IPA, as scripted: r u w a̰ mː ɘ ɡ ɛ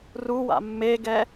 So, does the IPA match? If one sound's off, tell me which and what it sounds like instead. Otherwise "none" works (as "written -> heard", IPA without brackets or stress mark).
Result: ɘ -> e